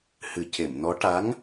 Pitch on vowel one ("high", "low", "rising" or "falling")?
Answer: low